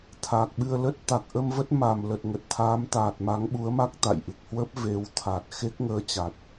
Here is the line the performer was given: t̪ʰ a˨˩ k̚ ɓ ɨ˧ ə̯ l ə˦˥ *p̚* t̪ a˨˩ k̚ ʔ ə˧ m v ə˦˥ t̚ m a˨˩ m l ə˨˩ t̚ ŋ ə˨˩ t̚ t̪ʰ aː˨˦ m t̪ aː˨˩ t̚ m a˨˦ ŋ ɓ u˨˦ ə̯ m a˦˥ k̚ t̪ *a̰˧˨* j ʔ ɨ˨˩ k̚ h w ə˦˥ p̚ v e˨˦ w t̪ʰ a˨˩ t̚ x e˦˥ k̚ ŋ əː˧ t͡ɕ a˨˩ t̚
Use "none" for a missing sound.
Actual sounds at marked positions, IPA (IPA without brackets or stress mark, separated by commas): t̚, a̰˧˨